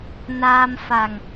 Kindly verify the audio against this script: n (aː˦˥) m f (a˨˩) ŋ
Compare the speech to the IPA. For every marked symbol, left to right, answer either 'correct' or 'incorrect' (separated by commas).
incorrect, correct